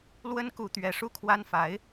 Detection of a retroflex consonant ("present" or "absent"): present